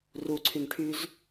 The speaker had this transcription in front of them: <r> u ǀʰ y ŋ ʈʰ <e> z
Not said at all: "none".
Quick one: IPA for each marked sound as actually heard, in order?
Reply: r, y

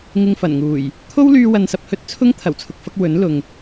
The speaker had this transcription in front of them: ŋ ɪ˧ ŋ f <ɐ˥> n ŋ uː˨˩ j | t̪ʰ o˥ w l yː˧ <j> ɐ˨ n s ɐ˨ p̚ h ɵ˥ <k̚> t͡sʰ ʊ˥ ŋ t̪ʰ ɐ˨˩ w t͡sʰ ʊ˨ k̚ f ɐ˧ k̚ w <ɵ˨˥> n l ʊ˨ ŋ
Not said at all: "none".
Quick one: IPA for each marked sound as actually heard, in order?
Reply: ɐ˨˩, w, t̚, ɵ˨˥

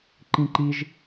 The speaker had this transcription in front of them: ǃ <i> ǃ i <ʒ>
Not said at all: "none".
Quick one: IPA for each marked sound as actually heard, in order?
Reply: ĩ, ʒ

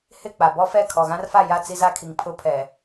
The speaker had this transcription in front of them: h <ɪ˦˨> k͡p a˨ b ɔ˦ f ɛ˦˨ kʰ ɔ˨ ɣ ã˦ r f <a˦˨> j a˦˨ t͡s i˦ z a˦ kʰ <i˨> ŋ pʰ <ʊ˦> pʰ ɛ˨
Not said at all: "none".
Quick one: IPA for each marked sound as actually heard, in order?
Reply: ɪ˦˨, a˦˨, i˨, ʊ˦

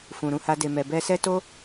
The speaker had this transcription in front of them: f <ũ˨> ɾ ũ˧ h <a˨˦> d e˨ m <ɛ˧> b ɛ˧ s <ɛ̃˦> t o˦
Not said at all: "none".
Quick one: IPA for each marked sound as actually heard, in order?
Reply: ũ˨, a˧, ɛ˨, ɛ˦

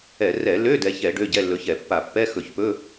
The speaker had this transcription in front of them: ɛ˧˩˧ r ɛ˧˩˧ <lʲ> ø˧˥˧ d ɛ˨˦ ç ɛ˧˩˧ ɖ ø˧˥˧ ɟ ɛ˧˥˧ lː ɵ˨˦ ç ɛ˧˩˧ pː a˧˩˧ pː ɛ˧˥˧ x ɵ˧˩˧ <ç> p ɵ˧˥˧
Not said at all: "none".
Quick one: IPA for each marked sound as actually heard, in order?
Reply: l, ç

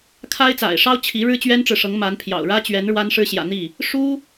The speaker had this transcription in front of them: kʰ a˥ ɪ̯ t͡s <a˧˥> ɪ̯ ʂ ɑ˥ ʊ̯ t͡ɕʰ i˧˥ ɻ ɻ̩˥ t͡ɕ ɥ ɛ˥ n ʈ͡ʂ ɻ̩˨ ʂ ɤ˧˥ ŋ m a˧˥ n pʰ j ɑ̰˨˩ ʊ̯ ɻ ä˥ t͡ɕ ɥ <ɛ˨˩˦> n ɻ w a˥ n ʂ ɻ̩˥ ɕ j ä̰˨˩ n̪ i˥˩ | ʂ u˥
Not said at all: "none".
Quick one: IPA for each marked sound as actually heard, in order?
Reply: a̰˨˩, ɛ˧˥

